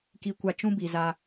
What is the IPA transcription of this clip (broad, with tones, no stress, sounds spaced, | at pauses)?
k i˨ kʷ a˨ t͡ʃ ũ˦ b i˨ z a˦